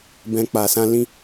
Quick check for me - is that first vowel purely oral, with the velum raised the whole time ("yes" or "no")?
no